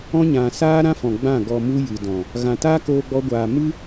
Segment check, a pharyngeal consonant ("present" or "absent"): absent